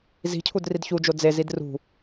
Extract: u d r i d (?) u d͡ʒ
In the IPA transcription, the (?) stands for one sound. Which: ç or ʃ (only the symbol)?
ç